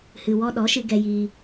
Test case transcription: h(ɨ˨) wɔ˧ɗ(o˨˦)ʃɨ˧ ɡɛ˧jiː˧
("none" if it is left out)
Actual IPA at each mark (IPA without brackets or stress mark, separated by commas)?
ɨ˨, ɔ˨˦